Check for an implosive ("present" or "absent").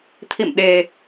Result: present